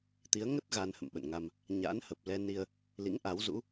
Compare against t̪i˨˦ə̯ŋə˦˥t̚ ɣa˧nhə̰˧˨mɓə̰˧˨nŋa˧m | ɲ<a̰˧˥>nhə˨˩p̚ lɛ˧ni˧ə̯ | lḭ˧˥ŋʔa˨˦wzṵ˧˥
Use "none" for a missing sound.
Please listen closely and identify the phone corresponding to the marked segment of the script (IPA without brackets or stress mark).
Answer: a̰˧˥